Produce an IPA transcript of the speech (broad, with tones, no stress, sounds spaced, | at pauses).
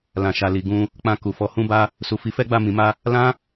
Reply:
l ã˨ ʃ a˨ l i˨ ɡ ũ˧ | k͡p ã˧ k u˨ f ɔ˧ h ũ˦ b a˦ | s u˨ f i˨˦ f ɛ˦ ɡ͡b a˦˨ m ĩ˨˦ m a˦ | l ã˦